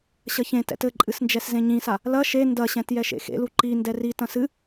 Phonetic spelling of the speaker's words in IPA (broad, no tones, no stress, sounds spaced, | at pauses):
ɕ ɐ ç ẽ t ɛ̰ t ɘ ǃʼ ɨ s n d͡ʒ ɛ s z ẽ ɲ ĩ s a | l ɐ ʃ e n d ɐ ɕ ɛ̃ t j ɛ ʃ ḛ x ḛ l u ǃ i n d ɛ r i t ɐ̃ s ɨ